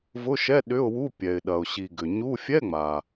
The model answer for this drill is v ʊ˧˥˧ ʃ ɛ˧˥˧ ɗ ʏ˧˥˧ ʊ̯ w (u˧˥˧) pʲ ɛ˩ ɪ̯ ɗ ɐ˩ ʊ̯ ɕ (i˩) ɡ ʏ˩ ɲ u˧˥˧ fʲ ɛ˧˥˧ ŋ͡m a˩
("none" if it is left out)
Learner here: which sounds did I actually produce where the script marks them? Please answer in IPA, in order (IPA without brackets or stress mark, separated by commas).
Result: u˧˥˧, i˩